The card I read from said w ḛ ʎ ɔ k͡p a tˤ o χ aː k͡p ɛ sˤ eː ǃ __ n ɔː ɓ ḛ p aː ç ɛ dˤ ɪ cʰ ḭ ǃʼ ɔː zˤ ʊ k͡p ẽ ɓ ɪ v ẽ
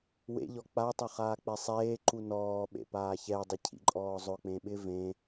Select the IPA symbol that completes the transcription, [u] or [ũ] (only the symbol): u